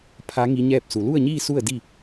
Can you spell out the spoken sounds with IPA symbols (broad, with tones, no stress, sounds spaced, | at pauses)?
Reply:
pʰ a˧˥ ŋ i˧˥ ɲ ɛː˥˨ p̚ s u˩˧ l u˥˨ ə̯ ɲ iː˥˨ s u˥˨ ə̯ d i˥˨